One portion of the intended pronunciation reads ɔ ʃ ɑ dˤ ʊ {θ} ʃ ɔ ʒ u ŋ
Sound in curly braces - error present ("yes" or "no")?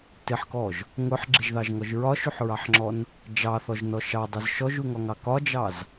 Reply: yes